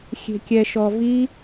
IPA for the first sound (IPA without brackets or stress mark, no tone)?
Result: xʲ